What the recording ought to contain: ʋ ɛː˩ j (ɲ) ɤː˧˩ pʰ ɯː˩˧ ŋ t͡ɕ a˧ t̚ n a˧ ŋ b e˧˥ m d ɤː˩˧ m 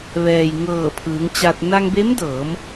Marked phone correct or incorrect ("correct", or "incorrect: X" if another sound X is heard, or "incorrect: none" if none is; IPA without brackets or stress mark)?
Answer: incorrect: ŋ